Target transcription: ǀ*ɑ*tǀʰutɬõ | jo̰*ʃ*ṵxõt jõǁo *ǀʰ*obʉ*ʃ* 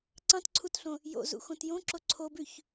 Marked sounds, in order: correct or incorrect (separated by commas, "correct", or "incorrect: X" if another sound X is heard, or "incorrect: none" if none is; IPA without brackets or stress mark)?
incorrect: ɑ̃, incorrect: z, correct, incorrect: ç